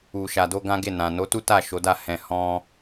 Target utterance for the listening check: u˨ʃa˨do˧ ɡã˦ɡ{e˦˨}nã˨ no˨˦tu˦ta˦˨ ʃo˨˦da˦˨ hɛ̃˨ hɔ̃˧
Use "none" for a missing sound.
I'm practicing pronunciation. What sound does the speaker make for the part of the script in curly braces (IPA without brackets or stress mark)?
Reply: e˦˨